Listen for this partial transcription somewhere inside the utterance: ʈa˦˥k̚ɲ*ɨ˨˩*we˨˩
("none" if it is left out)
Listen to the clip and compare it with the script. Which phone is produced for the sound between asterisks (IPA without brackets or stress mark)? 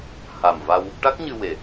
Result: ɨ˧